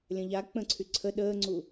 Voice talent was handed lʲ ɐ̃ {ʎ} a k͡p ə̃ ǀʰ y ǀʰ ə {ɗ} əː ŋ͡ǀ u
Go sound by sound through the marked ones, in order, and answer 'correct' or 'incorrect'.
correct, correct

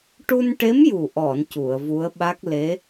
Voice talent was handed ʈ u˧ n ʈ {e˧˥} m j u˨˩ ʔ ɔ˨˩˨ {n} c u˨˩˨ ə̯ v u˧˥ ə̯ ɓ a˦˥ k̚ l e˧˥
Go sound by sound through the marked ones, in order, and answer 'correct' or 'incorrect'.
correct, correct

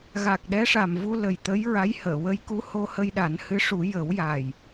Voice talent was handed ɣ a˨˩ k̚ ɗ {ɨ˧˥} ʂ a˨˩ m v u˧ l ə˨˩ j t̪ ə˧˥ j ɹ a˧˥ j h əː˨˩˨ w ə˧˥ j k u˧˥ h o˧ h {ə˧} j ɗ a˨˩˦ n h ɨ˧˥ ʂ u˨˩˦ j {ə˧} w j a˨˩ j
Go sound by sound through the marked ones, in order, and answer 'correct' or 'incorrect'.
incorrect, correct, incorrect

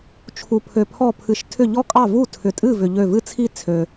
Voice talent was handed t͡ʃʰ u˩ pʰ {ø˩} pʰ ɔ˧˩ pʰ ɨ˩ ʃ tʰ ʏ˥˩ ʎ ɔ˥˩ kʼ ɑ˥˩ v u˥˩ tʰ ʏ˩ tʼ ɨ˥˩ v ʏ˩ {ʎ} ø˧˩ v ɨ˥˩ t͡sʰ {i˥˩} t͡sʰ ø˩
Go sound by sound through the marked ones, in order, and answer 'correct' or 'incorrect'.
correct, correct, correct

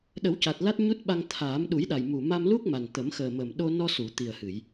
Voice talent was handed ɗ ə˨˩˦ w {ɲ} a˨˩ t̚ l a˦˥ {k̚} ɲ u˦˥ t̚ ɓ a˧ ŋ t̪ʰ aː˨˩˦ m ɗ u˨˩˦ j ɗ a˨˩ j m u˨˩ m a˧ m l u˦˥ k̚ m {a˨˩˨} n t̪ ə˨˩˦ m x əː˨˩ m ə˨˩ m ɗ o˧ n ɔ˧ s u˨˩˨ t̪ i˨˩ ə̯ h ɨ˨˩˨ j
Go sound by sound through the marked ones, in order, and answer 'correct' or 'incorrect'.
incorrect, incorrect, incorrect

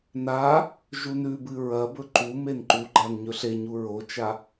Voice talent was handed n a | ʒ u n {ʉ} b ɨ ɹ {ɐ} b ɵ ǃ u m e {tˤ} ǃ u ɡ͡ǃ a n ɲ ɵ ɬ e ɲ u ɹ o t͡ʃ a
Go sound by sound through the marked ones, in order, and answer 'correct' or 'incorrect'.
correct, correct, incorrect

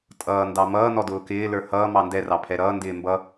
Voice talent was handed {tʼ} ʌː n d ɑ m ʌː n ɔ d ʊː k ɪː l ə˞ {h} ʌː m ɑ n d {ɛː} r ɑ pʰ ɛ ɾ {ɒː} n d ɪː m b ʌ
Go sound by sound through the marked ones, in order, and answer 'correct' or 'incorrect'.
correct, correct, incorrect, incorrect

